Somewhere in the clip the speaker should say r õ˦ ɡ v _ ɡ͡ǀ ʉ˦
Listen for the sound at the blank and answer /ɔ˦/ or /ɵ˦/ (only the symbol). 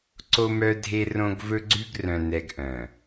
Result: ɵ˦